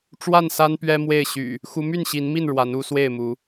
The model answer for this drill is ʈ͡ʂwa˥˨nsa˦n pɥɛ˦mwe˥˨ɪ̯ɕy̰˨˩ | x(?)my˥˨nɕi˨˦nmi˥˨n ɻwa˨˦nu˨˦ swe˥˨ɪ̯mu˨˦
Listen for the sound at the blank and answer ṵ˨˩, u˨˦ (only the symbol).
u˨˦